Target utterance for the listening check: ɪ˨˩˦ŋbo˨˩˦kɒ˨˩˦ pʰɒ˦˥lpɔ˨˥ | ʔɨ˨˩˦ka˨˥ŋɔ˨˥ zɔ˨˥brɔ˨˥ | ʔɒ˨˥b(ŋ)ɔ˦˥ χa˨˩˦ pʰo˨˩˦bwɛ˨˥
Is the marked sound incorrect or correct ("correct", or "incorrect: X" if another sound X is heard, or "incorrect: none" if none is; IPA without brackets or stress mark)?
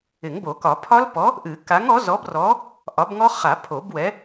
correct